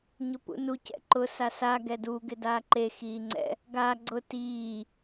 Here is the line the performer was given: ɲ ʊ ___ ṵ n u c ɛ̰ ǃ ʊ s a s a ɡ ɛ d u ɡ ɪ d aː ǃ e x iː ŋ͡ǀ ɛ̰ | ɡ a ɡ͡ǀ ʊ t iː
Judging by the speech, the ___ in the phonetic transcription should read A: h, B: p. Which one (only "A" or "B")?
B